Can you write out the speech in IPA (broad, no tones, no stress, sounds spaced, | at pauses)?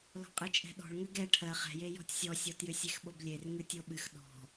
l ɔ̤ qʼ ɨ t͡ʃʼ ɛ̤ ɗ ɔ̤ ɭ ŋ ʏ ɡ ɛ ʈʰ ɜ χ ɛ̤ j e j ɔ̤ tʲ sʲ ɔ sʲ ɔ t j ʏ sʲ e x ɓ o b lʲ e r ŋ ɨ tʲ o ɓ ɨ x ɗ ɔ̤